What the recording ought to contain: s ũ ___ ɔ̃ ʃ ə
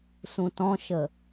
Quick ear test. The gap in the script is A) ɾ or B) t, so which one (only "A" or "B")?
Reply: B